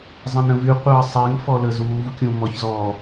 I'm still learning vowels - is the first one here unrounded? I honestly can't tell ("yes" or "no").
yes